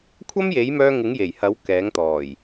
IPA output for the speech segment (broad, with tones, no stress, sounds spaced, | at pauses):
kʷʰ ɐ˥ m j e˨˥ j m œː˧ ŋ ɪ˨˥ ŋ j e˨˩ j h ɐ˨˥ w k ɛː˨˥ ŋ t̪ ɔː˨˩ j